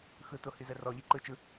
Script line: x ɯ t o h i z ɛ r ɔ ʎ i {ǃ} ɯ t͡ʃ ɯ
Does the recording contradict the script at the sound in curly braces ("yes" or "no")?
no